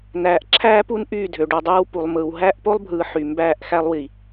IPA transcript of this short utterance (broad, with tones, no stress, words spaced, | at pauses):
næː˨ʔǁʰæː˦pu˦n ʔyː˦˨dʱø˨ɖu˨dˤɯː˦w pu˨lˠmɯː˨w ɦæː˦ʔpo˦lˠbʱɯː˨ ħy˨ mbæː˦˨ʔxæ˦lˠwi˨